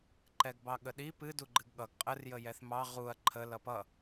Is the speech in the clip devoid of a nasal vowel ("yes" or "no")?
yes